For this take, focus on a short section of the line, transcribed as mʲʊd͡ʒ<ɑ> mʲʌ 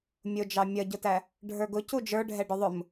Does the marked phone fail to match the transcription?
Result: no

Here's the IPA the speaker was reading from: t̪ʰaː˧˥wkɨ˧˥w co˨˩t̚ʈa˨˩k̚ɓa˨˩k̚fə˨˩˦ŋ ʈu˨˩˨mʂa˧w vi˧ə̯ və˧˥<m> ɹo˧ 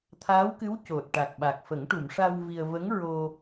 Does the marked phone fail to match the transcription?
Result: yes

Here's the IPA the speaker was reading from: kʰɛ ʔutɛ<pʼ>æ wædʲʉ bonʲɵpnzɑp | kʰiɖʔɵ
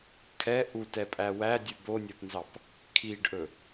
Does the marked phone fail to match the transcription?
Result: no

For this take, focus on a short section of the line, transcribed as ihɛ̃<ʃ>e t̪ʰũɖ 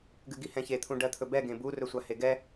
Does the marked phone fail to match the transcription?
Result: yes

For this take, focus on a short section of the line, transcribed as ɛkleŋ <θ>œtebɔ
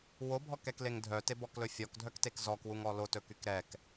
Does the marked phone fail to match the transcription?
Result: yes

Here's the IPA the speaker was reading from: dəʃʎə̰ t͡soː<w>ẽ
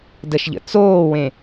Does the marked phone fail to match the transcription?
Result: no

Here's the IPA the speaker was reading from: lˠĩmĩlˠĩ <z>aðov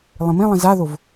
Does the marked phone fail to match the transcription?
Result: no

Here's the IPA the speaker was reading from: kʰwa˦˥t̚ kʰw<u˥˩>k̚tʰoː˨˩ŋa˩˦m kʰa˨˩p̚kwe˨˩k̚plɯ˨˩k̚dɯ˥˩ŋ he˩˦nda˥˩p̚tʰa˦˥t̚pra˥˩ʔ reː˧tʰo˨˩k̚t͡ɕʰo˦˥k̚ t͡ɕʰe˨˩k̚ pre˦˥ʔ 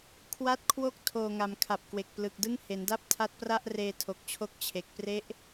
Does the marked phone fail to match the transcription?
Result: yes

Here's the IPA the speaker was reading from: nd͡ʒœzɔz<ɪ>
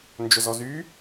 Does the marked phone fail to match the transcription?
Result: yes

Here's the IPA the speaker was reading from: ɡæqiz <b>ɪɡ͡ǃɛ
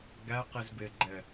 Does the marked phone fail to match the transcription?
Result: no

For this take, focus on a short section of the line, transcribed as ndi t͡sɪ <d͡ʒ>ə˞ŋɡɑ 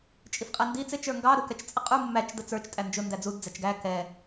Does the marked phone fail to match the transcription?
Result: yes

